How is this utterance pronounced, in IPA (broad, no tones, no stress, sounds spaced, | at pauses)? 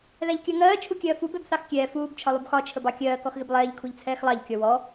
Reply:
ð æ ʎ kʲ ɜ ŋ ɜː t͡ʃʰ u kʲ ɜː f u b ɛ b θ ɑ x kʲ ɛː f uː b t͡ʃʰ ɒ lˠ u b x ɒ t͡ʃʰ ə b ɑ kʲ ɜː k ɔ x ɣ ɪ b lˠ ɛː ʎ kʰ u ʎ t͡sʰ ɛː x lˠ ɑ ʎ kʲ ɔ w ɔ